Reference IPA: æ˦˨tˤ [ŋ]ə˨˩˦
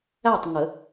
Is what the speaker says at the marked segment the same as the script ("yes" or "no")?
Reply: yes